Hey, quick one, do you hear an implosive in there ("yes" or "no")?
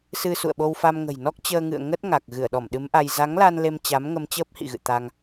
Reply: yes